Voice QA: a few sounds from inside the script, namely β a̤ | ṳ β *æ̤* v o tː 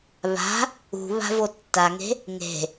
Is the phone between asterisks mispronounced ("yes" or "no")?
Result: yes